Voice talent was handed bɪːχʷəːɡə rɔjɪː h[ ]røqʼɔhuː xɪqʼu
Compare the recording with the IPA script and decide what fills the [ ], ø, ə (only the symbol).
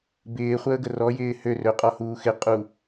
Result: ø